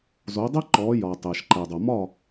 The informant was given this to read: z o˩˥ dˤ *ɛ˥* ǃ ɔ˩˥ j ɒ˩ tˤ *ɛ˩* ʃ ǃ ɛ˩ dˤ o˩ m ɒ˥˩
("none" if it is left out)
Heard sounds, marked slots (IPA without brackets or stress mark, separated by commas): ɛ˥, ɛ˩